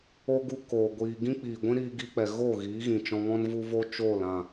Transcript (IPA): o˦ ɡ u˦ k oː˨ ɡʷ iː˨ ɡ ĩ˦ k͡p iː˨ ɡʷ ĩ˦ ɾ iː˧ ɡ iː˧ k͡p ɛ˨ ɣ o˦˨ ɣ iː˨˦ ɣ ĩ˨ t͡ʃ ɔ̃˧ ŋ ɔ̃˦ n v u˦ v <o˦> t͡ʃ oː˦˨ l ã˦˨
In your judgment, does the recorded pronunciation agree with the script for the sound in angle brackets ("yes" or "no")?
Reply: yes